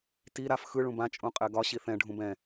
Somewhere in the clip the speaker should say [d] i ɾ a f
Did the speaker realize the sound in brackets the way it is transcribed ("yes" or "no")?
no